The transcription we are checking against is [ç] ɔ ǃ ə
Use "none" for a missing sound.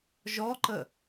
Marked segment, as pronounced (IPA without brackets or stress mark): ʒ